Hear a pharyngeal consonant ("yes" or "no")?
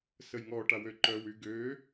no